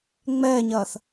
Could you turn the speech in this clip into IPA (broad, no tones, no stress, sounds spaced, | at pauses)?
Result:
ŋ͡m ɛ ɲ ɐ θ